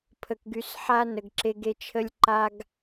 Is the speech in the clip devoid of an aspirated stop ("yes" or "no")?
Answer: no